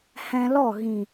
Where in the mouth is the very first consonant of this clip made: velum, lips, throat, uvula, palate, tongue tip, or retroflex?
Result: throat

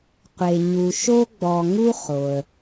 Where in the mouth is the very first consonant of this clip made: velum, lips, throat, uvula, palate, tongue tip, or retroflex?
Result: uvula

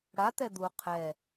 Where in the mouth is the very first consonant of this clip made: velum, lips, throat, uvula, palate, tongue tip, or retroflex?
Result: retroflex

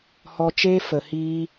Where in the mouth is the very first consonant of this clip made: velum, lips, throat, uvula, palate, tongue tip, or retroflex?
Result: throat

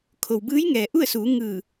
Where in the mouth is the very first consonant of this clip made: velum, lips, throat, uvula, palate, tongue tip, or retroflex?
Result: velum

